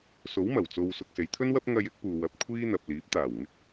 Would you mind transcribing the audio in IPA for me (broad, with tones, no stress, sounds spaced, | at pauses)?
s o˨˥ w m ɐ˨˩ w t͡s o˧ w s ʊ˧ k̚ s e˨˧ j t̪ʰ ɵ˥ n w ɐ˥ p̚ ŋ ɐ˧ j ɪ˥ k̚ p uː˨ w ɐ˨˥ p̚ kʷʰ iː˥ n̪ ɐ˨ p̚ l iː˨˥ p̚ t̪ aː˨˩ w ŋ ɪ˥ k̚